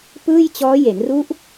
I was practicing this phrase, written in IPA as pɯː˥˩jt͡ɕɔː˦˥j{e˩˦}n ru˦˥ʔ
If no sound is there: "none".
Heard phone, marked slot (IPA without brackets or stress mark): e˩˦